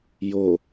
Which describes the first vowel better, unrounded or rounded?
rounded